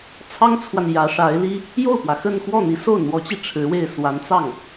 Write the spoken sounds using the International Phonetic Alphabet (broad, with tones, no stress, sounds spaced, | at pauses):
t͡sʰ ɑ˥ ŋ t͡sʰ w a˨ n j ä˧˥ ʂ a˧˥ ɪ̯ l i˥ | j o˥˩ ʊ̯ p w ä˩ x ə˥˧ n x w ɔ˥˩ n̪ i˧˥ s o˥˩ ʊ̯ n̪ w ɔ˧˥ t͡ɕ i˧ ʈ͡ʂʰ ɻ̩˧˥ w e˥˩ ɪ̯ s w a˧˥ n t͡s ɑ˥˩ ŋ